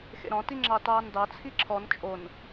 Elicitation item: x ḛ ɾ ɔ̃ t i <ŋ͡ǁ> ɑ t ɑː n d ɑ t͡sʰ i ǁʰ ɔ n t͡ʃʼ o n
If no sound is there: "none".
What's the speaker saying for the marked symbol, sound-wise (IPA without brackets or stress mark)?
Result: ŋ͡ǁ